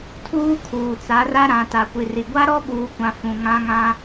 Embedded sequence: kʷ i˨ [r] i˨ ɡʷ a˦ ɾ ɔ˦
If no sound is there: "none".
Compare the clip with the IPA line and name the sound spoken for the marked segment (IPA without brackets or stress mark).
r